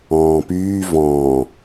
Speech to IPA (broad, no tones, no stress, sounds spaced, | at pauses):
ɔ̃ː p yː v ɔ̃ː